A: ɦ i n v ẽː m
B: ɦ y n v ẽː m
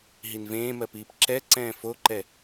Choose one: A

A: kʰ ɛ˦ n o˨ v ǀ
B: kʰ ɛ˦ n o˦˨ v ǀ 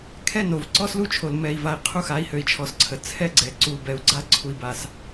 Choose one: A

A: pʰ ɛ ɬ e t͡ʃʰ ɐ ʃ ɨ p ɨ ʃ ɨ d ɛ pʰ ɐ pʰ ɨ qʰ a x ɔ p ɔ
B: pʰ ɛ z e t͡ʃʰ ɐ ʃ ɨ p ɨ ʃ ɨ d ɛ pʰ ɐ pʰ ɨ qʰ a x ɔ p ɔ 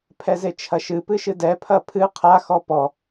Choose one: B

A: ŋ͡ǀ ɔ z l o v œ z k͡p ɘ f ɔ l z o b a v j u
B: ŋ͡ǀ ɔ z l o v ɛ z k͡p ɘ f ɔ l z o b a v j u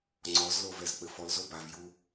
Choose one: B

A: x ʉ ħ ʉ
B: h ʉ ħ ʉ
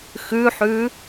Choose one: A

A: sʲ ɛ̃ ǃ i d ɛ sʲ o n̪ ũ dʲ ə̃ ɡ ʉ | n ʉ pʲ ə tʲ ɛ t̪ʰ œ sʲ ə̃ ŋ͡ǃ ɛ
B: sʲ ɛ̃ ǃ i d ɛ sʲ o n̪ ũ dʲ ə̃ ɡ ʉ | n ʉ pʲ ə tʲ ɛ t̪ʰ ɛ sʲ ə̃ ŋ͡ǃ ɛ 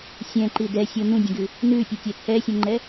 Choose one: B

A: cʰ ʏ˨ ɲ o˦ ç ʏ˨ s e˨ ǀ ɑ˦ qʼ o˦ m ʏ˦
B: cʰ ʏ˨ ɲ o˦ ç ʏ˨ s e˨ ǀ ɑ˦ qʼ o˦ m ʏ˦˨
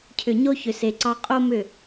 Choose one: B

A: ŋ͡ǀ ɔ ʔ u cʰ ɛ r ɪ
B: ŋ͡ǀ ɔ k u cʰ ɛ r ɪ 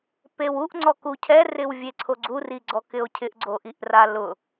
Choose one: B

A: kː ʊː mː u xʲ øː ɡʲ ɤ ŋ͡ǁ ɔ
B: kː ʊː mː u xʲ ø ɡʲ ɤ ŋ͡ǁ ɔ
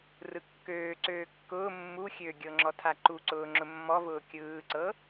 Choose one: B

